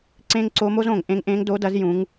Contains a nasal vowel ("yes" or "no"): yes